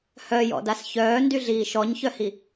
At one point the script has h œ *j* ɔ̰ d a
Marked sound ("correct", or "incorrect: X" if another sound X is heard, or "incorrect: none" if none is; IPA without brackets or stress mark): correct